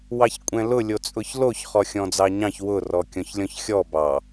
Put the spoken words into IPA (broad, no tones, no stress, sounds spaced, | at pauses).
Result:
w ɑ ç kʷʼ ɛ̃ l ʊ lʲ o t͡sʼ ʊ ç l o ç χ ɔ xʲ ɔ̃ d͡z ɑ ɲ ɑ̃ ç w ʊ r ɔ kʲ ɔ̃ ç lʲ ɔ̃ ç xʲ ɔ b ɑ